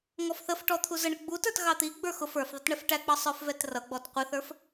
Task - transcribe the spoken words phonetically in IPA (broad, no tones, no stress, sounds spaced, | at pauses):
ŋ ɔ f θ ə f ʈ ɔ t̪ʰ u z ə ɳ ə ɡ͡b u t ə˞ t ɣ ɑ t̪ i ɡ͡b ə˞ x ʊ f ə˞ f ðˤ ɪ t ɳ ɛ f ʈ æ k͡p ɑ sˤ ə˞ f v ɛ t r ʌ ɡ͡b ɔ t qʷ ɪ θ ə˞ f